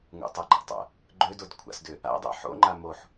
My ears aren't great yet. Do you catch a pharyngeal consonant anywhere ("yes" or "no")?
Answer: yes